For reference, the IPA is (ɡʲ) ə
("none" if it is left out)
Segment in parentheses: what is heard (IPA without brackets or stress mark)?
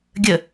ɡʲ